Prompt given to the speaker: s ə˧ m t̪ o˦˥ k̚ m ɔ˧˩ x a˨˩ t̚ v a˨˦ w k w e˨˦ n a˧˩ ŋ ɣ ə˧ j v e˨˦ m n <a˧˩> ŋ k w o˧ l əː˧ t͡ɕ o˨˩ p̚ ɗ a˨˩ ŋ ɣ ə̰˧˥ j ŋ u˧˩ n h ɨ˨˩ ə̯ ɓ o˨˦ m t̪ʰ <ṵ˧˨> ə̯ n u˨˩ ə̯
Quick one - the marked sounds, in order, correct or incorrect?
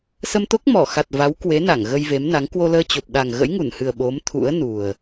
incorrect: a˨˦, incorrect: ṵ˧˥

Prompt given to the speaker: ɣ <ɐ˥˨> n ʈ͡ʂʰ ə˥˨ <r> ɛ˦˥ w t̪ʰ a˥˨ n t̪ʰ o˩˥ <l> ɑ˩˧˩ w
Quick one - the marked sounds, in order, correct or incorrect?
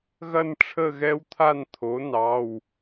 correct, incorrect: ɣ, incorrect: n

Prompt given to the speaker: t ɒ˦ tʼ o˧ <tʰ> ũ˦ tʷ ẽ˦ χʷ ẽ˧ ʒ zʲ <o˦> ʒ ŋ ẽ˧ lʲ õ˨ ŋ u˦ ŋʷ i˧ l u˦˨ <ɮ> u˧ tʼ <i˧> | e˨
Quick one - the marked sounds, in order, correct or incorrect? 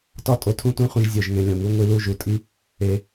correct, incorrect: o˨, incorrect: ʒ, incorrect: i˦

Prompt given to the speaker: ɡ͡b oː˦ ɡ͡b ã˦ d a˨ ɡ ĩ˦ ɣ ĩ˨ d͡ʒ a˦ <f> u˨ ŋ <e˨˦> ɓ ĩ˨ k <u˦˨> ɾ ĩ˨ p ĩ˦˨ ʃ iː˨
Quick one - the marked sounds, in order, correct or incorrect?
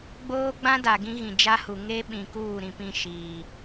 incorrect: h, incorrect: e˦, incorrect: uː˦˨

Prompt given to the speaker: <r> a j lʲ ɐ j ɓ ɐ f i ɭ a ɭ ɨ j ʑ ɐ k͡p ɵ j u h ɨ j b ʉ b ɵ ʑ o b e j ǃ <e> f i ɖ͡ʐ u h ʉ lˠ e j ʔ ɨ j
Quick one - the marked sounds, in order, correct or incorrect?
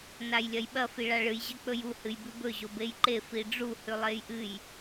incorrect: n, correct

